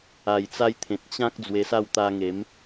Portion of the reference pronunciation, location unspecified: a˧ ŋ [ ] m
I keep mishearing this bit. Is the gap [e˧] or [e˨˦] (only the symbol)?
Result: e˨˦